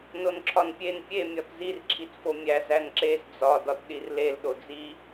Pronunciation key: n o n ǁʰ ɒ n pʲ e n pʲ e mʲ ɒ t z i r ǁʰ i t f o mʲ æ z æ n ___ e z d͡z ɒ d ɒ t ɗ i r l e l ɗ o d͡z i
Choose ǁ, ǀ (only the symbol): ǁ